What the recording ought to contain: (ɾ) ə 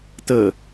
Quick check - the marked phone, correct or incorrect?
incorrect